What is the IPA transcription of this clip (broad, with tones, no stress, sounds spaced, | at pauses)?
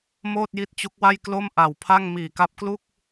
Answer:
m oː˥˩ t̚ j i˦˥ t̚ t͡ɕ u˦˥ k̚ w a˥˩ j k l o˥˩ m ʔ a˨˩ w pʰ a˥˩ ŋ m iː˨˩ k a˦˥ p̚ k l u˥˩ k̚